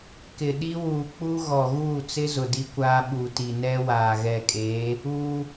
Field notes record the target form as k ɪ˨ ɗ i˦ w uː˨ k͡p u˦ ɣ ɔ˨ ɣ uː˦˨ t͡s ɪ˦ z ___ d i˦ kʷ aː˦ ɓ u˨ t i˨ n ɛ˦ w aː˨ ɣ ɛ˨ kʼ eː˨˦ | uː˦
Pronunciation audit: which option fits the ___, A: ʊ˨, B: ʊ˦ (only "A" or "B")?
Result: A